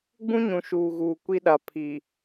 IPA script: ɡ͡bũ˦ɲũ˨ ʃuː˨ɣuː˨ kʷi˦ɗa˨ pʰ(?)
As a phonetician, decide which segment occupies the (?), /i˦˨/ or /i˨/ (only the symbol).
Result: i˨